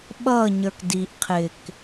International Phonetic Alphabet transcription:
ɓ ʌ ɲ ə˞ k d i ʔ qʰ ɪ k

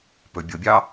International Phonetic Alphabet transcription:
p ɵ bʲ o bʲ ɑ

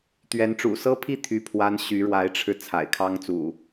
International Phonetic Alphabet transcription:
t̪ ɥ ɛ˨˦ n ʈ͡ʂ ṵ˨˩ s ɤ˦ pʰ i˥˨ t̪ʰ y˦ pʰ w a˦ n ɕ y˨˦ ɻ w a˨˦ ɪ̯ ʈ͡ʂʰ ɻ̩˧ t͡sʰ a̰˨˩ ɪ̯ kʰ ɑ˦ ŋ t͡s ṵ˨˩

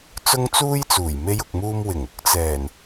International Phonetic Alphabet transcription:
t͡s ʊ˥ ŋ t͡s uː˥ j t͡s uː˨˩ j m e˧ j ʊ˨ k̚ m uː˧ m w ɪ˨˩ ŋ ʊ˧ k̚ t͡s ɛː˨˩ n

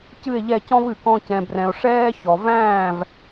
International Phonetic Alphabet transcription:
c ɨ˦˨ e̯ ʎ ɛ˦˨ c ɔ̃˦ v ɨ˨ k ɔ̃˧ c ɛ̃˨ b r ɛ̃˨ o̯ ʂ ɛː˦ ç ɔ˨ v æ̃ː˦˨ v

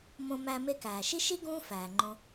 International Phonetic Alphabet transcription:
m õ˧ m æ˧ m e˧ k æː˩ ʃ i˥ ʃ i˥ ɡ ũː˥ f æː˩ ŋ͡ǃ õ˧

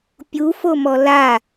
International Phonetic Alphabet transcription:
pʲ u f o m ɔ l a

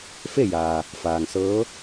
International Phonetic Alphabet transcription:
f e˥˨ j aː˩ | f aː˩ ŋ s ɤː˧˥

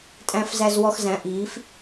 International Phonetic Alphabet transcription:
tʼ æ̃˧ f z æ˧ z w ɔ˧ x z æ̃˨˥ ʔ iː˨˥ f

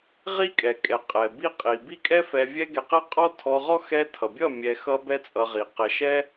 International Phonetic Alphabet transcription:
ʁ i˦ kʼ ɛ˨ kʼ ɛ˨ qʼ ɛ˨ b i˦ qʼ i˨ b i˦˨ kʼ ɛ˦ f ɛ˧ vʲ ɛ˦ ɡ ɛ˧ q ɛ˦ qʼ ɔ˦ tʰ ɔ˧ ʁ ɔ˦ x ɛ˧ tʰ ʌ˨ bʲ ʌ˦˨ mʲ ɛ˧ x ʌ˦ b ɛ˦ t͡sʼ ʌ˧ ʁ i˨ q ɛ˧ ʃ ɛ˦

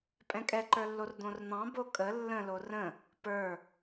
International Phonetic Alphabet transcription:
pʼ ɛ̃ kʼ ɛ ǃ ə˞ lː o r d̪ õ r n̪ ɑ̃ b o kʼ ə lː ə̃ l o r ə̃ | p ə˞

